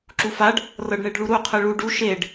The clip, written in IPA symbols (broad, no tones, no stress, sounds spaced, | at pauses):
ǁ u f a ɖ | r ɤ ɖ ɳ e ɖ ɭ u ɾ u qʰ ɯ ɭ u ɖ u ʃ e ɖ